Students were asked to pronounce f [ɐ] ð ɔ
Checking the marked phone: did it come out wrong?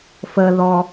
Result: yes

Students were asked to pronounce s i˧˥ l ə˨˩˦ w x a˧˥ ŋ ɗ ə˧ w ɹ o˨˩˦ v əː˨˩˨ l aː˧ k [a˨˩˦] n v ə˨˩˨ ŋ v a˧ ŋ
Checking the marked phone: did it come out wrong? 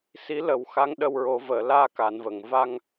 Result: yes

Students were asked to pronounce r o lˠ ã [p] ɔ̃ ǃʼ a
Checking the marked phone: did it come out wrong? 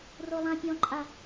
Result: yes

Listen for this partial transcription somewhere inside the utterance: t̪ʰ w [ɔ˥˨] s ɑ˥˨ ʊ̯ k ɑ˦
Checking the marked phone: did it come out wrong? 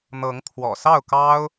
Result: yes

